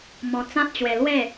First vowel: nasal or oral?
nasal